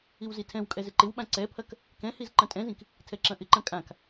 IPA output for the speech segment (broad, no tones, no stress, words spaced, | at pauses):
iwzitʰɛ̃w kʼɛzɪǃɪwɓã ǀɛpʰɐk | kɛ̃hiz ǃɐ̃tʼɛ̃zĩk | tʰɛǁɐ̃ʔɪǃɐ̃ kʼãk